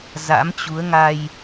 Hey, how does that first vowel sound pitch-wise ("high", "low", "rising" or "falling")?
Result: rising